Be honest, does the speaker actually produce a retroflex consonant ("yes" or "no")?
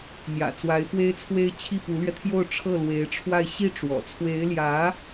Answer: yes